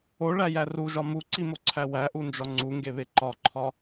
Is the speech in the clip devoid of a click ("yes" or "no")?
no